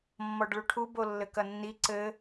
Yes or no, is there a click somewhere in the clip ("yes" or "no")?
yes